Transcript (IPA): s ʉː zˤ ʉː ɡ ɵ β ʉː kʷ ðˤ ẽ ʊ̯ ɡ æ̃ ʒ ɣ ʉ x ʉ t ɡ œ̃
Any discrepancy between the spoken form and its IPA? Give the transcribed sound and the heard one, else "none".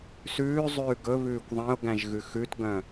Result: none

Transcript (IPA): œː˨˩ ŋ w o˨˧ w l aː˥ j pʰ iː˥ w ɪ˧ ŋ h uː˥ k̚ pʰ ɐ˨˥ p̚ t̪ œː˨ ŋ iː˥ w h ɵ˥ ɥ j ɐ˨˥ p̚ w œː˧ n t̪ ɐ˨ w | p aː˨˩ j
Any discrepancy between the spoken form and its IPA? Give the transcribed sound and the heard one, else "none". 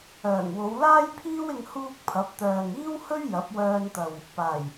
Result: none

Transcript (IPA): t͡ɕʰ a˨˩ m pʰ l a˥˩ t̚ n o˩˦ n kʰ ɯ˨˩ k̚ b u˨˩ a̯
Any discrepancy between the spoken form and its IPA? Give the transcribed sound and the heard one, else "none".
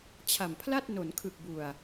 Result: none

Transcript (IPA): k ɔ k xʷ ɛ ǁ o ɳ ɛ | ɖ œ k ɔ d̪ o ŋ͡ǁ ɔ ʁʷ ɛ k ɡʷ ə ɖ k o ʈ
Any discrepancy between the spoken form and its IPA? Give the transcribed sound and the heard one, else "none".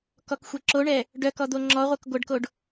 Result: ʈ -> ɖ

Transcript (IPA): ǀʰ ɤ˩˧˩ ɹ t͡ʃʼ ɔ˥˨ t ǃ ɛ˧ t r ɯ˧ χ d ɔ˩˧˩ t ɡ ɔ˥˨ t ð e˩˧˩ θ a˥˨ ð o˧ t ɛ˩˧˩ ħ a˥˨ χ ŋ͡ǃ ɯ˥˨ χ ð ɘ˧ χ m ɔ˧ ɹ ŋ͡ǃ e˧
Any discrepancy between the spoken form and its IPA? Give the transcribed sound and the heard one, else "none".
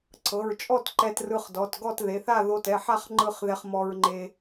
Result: ɘ˧ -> ɛ˧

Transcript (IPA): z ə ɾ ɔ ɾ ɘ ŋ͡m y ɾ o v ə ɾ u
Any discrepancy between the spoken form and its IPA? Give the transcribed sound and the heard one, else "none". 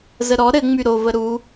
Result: none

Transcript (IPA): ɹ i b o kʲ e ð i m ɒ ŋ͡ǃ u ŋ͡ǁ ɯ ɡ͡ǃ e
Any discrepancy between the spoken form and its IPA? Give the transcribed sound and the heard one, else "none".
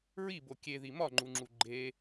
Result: ɯ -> u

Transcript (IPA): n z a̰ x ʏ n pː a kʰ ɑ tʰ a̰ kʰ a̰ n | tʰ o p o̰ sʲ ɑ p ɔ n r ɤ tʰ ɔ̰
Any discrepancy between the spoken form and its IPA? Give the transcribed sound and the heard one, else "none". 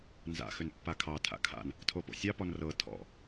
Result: none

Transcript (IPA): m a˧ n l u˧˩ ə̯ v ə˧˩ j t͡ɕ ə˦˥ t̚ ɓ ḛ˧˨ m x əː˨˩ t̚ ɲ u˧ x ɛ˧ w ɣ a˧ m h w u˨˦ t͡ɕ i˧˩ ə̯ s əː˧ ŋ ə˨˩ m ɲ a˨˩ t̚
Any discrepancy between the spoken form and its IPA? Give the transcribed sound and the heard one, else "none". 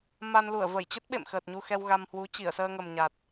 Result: none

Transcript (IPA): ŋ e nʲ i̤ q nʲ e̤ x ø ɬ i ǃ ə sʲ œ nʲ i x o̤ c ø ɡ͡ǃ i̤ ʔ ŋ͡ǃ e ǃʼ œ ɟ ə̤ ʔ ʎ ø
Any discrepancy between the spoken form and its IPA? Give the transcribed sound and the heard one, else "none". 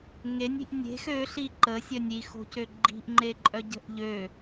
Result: q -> ʔ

